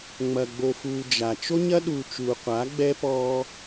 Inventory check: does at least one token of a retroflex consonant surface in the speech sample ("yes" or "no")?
no